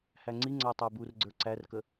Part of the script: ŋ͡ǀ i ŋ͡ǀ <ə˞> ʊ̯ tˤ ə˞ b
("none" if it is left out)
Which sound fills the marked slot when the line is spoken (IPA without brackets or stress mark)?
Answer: ʌ